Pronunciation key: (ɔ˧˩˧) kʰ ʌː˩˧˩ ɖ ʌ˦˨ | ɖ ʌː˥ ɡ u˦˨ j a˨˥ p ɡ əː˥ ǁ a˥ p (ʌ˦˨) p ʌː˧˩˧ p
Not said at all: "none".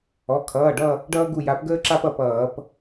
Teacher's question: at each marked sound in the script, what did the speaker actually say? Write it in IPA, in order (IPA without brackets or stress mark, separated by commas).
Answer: ɔ˩˧˩, ʌ˦˨